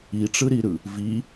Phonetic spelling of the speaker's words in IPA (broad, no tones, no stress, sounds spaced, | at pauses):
i ʈ͡ʂ ɯ ɾ i ɾ ɯ | v i